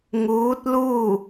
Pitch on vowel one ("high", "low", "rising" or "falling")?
rising